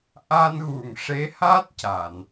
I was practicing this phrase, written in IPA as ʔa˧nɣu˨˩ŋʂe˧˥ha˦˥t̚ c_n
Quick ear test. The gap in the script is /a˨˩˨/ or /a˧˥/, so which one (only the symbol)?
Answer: a˨˩˨